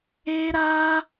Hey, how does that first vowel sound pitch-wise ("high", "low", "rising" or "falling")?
high